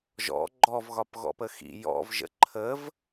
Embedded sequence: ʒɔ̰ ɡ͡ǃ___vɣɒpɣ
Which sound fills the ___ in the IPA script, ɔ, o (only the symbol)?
ɔ